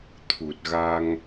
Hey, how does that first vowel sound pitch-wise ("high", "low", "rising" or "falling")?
low